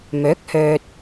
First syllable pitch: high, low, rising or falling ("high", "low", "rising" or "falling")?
rising